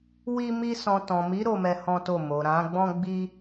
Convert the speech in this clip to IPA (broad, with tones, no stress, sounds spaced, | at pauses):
w i˦ m i˦ s ɔ̃˧ t ɔ̃˨ m i˨˦ ɾ o˦ m ɛ˦ h ɔ̃˦ t o˦˨ m o˨ ɾ ã˨˦ ɡ͡b ɔ̃˦ ɡ͡b i˦